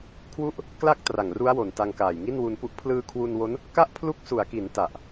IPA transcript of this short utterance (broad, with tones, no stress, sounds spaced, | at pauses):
kʰ w u˥˩ ʔ | k l a˥˩ k̚ t r a˨˩ ŋ r u˦˥ a̯ w o˨˩ n t a˧ ŋ k aː˨˩ j ŋ i˥˩ n w u˧ n p u˦˥ ʔ pʰ l ɯː˧ kʰ w u˧ n w o˦˥ n | k a˥˩ ʔ pʰ l u˦˥ k̚ s u˩˦ a̯ k i˩˦ n t a˨˩ ʔ